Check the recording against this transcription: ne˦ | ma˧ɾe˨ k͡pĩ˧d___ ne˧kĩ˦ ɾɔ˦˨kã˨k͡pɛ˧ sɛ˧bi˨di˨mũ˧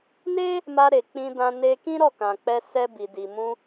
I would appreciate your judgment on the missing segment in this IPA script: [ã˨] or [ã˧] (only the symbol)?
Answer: ã˧